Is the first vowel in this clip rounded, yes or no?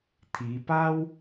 no